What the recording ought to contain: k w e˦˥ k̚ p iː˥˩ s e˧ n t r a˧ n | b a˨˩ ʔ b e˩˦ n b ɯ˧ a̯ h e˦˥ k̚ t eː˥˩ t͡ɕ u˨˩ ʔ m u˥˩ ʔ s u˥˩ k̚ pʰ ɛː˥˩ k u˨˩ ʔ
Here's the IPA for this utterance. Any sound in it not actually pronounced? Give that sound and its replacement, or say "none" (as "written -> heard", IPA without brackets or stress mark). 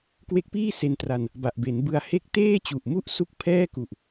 none